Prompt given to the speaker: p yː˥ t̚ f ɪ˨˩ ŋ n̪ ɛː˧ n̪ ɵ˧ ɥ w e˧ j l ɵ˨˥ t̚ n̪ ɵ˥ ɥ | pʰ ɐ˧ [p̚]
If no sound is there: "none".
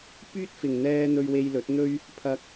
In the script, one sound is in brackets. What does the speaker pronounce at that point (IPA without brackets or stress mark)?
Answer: k̚